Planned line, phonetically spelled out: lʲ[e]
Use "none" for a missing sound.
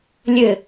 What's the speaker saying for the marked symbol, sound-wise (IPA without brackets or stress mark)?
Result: ɘ